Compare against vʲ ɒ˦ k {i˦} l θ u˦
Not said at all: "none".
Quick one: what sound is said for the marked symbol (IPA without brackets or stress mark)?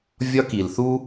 i˨